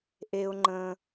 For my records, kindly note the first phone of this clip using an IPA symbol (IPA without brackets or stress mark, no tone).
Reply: ʔ